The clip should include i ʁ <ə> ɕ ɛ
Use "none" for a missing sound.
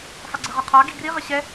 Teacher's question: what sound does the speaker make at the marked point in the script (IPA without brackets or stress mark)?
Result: ə